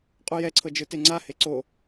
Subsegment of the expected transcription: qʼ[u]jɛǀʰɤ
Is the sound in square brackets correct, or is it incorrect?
correct